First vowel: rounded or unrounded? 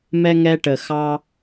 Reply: unrounded